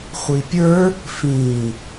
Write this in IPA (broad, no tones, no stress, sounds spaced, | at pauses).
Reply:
χʷ i pʲ ə˞ | f ĩ